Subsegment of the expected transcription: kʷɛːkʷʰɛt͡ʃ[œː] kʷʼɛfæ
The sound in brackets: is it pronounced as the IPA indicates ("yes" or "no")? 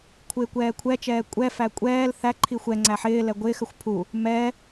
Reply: no